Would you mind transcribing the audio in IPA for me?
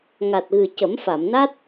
ŋ a˨˩ t̚ ɣ ɨ˨˩ c ə˨˩˦ m f a˨˩˨ m n a˦˥ t̚

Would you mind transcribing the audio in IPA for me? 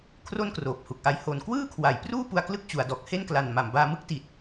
kʰ r o˥˩ n k r oː˨˩ p̚ h u˨˩ k̚ ʔ a˦˥ j h o˨˩ n k w ɯː˥˩ kʰ w a˩˦ j p r uː˥˩ p u˧ a̯ k l ɯ˥˩ k̚ t͡ɕ u˩˦ a̯ d ɔː˨˩ k̚ h e˥˩ n k l a˨˩ n m a˨˩ m b aː˧ m ɯ˦˥ k̚ t i˨˩ t̚

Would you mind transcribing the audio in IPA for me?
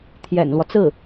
t̪ʰ j ɛ̰˨˩ n l w ɔ˦ t͡s ɹ̩˥˩

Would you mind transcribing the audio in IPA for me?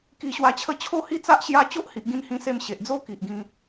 k i˧ ɕ w a˧ t͡ɕʰ ə˦ t͡ɕʰ o˥˧ h i˥˧ t͡s a˦ ʔ ɕ j a˦ t͡ɕ o˦ ʔ h i˨ ʔ ɡ ĩ˧ n h ĩ˧ s e˧ m ɕ e˨ ʔ d͡z o˦ k i˨ ʔ ɡ ĩ˧

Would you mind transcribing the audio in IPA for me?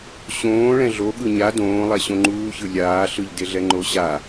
ɕ õː ɭ ɛ̃ ɮ o ɠ ɯ ɲ a d õː lˠ ɛ ɕ õ ŋ͡ǃ uː ç ɯ lʲ aː ɬ ɯ ʎ d e ɮ ɛ ŋ͡ǃ o ɕ a

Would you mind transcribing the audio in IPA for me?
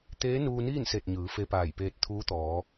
t̪ eː˧˥ n uː˧ n iː˥˨ n s e˧˩ t̚ ɲ ɯː˩˧ f e˧ p aː˧˩ j p eː˧ t̚ t̪ʰ uː˧˥ t̪ ɔː˩˧

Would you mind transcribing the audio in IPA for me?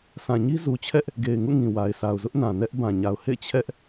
sʰ ã˨ ɲ i˦ z u˨ t͡ɕʰ ɛ˦ ʔ | ɡ e˨ ɪ̯ ŋ ṵ˦˨ ŋ ĩ˨ w a˨ ɪ̯ sʰ a˨ ʊ̯ z ʊ˦ ʔ n ã˨ n ɛ˦ ʔ b ã˨ ɲ a˨ ʊ̯ h ḛ˦˨ ɪ̯ t͡ɕʰ ɛ˦ ʔ

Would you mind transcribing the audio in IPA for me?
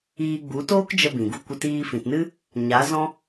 iː˧ ɡ͡b u˨˦ t oː˦ k d͡ʒ ə˧ b ĩ˨ ɡ u˧ kʷ ə˧ t iː˧ f ĩ˨ t n ɨ˦ | ɲ a˨˦ z ɔ̃˦

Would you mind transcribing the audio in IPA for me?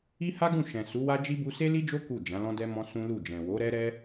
i˦ h a˦ ɡ ũ˦˨ ʃ ɛ̃˨ s u˨˦ w a˦ d͡ʒ i˦ b u˧ s e˦ l i˦ d͡ʒ o˦ k u˦˨ d͡ʒ ã˨˦ l ɔ̃˦ d ɛ˦ m ɔ̃˦ s ũ˦ l u˦˨ d͡ʒ ɛ̃˨ w o˨˦ ɾ ɛ˦ ɾ ɛ˦

